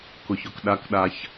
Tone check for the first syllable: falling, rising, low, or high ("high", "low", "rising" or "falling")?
low